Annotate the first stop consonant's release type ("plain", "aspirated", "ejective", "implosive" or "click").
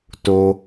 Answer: plain